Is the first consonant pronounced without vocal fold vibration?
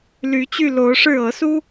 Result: no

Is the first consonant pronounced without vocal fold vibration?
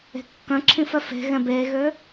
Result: yes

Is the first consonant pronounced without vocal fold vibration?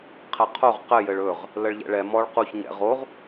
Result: yes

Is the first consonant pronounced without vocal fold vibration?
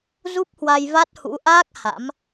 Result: no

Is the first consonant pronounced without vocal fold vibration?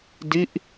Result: no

